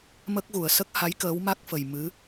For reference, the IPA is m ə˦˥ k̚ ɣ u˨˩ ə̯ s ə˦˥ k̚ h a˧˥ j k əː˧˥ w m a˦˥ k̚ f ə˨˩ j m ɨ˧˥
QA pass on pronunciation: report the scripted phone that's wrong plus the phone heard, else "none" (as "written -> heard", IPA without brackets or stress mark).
none